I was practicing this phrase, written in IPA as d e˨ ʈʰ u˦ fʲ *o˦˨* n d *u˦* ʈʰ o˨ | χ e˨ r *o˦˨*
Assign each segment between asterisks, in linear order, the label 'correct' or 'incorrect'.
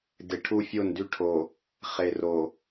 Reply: correct, incorrect: y˦, incorrect: o˨

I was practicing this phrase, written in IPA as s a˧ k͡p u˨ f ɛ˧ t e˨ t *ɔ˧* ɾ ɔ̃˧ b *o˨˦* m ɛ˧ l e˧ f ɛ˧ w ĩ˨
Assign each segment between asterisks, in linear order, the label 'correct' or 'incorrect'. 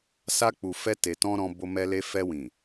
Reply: incorrect: ɔ̃˧, incorrect: o˧

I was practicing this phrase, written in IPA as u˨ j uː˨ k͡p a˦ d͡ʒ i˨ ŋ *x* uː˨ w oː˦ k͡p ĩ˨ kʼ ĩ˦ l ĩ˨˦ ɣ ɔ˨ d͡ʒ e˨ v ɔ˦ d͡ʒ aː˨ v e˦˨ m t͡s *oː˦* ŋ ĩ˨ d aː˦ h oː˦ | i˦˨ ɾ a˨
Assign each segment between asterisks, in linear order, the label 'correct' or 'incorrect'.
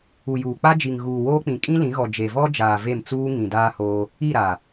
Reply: incorrect: ɣ, incorrect: uː˦

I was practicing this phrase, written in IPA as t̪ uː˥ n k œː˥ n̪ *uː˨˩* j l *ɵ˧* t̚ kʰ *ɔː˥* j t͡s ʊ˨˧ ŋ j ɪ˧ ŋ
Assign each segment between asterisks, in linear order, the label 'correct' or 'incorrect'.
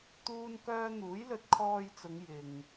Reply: incorrect: uː˨˥, correct, incorrect: ɔː˧

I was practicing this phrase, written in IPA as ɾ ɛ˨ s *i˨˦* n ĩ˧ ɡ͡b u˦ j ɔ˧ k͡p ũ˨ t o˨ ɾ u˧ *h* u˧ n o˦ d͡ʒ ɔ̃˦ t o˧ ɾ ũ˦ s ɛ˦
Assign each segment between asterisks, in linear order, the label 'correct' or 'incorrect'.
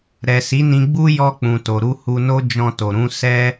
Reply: correct, correct

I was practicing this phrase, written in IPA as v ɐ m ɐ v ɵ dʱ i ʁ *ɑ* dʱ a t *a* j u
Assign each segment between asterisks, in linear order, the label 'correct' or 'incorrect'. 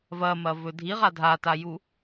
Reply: incorrect: a, correct

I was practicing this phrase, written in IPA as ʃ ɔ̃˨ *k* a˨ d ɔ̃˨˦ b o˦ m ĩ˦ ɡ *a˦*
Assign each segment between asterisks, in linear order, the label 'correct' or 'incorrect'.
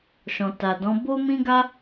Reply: incorrect: t, correct

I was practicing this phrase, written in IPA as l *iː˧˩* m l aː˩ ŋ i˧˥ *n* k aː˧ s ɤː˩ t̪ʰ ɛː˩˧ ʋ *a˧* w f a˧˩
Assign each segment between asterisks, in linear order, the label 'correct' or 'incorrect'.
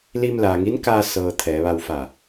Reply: incorrect: iː˧, correct, correct

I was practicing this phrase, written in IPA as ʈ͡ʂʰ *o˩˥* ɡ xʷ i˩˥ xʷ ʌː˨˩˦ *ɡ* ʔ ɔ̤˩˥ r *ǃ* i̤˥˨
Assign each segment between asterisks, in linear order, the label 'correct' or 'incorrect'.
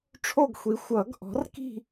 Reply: incorrect: o˥˨, correct, incorrect: k

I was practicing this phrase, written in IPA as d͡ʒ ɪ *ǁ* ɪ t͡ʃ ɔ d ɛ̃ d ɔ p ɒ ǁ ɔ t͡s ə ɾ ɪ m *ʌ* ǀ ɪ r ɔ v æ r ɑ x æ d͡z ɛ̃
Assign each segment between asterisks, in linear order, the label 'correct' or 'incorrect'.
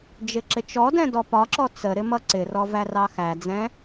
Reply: correct, correct

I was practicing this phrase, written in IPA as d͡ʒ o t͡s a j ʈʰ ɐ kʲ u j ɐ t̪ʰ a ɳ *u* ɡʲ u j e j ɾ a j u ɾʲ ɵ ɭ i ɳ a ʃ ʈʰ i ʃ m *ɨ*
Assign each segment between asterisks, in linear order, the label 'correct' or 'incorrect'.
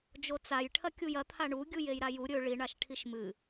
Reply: correct, correct

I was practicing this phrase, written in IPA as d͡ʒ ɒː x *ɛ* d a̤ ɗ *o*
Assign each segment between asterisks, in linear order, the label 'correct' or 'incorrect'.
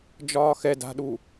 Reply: correct, incorrect: u

